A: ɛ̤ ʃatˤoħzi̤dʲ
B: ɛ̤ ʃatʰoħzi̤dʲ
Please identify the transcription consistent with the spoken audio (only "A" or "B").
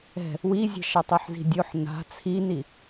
A